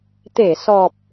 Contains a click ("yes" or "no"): no